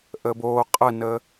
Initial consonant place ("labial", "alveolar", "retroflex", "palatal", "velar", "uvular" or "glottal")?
glottal